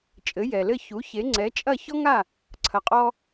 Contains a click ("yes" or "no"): yes